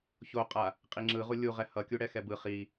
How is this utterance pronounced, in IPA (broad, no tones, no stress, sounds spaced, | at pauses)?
ç o qʼ a | qʼ i ŋ͡ǁ ɯ ʁ u lʲ u ʁ ɛ h ʌ kʲ u ɽ ɛ x ɛ b ɯ χ i